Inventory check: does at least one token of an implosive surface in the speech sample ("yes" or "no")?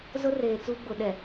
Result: yes